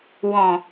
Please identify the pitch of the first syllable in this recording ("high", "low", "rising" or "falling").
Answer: low